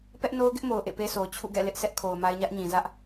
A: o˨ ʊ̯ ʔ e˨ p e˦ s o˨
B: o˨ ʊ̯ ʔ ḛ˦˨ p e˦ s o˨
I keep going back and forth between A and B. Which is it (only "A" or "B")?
B